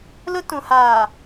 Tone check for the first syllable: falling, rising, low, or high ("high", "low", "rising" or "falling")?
high